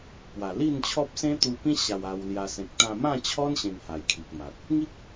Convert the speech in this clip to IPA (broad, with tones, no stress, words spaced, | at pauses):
pwa˨˩li˥˧nt͡ɕʰɔ˦p̚ sẽ˦t̪u˧pĩ˦ ɕa˧wa˧wlja˧ sẽ˨k̚t̪ã˧mã˥˧t͡ɕʰɔ˦n ɕẽ˧ŋha˨˩jkʰi˨k̚ma˨t̚ | ŋi˦k̚